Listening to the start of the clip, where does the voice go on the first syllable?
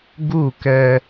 falling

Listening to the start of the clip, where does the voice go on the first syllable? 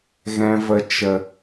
low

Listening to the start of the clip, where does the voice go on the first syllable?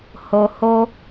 low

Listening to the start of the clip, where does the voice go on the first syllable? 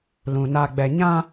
low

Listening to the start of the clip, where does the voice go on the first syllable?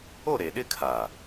falling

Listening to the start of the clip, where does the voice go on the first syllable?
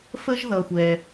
high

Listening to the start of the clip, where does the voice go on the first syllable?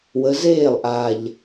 rising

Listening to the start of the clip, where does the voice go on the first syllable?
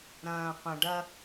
low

